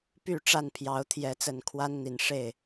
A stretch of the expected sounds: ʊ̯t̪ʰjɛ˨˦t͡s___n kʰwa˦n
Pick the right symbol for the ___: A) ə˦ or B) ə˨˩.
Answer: B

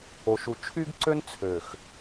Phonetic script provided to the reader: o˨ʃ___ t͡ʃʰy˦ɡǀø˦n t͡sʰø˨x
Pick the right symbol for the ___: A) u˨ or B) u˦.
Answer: A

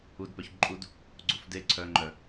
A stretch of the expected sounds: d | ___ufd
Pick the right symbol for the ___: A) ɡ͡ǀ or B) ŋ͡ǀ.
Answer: A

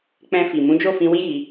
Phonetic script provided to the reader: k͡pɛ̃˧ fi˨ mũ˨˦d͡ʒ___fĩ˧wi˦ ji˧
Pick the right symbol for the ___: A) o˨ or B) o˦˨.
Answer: B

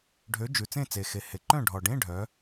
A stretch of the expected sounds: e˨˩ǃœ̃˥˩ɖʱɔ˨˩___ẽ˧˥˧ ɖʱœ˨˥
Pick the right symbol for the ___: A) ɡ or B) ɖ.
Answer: B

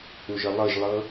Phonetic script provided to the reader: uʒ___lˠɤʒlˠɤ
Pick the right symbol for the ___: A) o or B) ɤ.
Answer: B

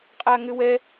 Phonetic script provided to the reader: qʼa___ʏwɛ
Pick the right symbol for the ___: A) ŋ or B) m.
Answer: A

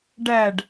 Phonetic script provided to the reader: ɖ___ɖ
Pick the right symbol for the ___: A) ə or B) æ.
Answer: B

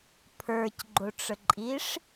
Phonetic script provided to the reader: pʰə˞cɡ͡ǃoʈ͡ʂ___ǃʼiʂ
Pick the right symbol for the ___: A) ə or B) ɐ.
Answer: A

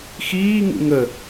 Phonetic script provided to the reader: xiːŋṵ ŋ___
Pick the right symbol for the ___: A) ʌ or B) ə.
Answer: B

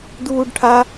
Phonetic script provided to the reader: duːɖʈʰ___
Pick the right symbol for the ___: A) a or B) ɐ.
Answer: A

